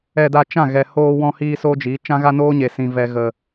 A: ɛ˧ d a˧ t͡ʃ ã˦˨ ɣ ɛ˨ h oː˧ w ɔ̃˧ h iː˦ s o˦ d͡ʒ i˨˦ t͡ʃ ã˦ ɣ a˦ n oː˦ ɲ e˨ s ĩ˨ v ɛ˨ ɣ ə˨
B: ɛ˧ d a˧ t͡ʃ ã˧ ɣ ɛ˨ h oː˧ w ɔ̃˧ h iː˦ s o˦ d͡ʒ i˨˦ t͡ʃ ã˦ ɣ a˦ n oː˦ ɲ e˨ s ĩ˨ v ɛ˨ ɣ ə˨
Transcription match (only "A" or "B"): A